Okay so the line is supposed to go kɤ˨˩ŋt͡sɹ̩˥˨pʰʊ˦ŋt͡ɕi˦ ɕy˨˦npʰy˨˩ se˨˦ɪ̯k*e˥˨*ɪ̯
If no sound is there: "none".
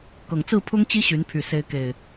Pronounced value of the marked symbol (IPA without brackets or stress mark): e˨˩